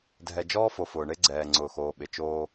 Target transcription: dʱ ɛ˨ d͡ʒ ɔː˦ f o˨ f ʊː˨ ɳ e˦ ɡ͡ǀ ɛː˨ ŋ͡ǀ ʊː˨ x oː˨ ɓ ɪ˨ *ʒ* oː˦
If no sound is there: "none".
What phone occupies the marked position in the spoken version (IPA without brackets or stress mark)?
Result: t͡ʃ